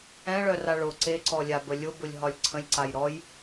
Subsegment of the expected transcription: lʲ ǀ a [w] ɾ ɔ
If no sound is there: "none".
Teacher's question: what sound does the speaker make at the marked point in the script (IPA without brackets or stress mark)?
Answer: j